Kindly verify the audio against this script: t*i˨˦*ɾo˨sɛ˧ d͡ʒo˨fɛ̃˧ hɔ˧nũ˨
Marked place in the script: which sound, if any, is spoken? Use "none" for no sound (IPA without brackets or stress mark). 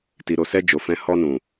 i˨